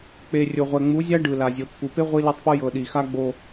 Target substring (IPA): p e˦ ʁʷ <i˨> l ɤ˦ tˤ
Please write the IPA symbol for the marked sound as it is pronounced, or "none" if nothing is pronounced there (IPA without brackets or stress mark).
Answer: i˦